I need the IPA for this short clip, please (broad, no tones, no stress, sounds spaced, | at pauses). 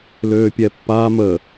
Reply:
l øː pʲ ɛ pː a m ə